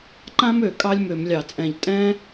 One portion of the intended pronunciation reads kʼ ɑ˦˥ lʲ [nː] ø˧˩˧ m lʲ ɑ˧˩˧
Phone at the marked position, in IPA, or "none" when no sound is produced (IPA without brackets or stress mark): m